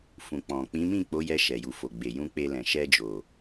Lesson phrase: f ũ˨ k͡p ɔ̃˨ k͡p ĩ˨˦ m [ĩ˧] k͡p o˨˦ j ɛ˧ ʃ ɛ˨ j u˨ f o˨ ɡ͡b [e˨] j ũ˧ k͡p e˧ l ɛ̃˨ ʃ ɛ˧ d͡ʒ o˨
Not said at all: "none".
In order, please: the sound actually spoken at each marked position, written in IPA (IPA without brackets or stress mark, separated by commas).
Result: ĩ˦˨, e˨